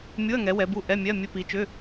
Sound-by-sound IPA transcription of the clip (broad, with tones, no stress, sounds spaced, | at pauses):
mʲ u˧˥˧ ɐ̯ ŋ ɛ˨˦ w ɛ˨˦ b u˧˥˧ ʔ ɛ˧˥˧ mʲ ɛ˧˥˧ ɐ̯ mʲ ɘ˧˥˧ p i˨˦ t͡ʃ ʏ˧˥˧